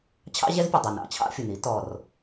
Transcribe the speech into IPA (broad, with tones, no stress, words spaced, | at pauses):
t͡ɕʰɑ̰˦ʑɛ˦zpʲə˨˩ dˤʌ˨˩nɑ̰˨˩ t͡ɕʰɑ̰˦fʲʊ˨˩n i˦tɔ˨˩r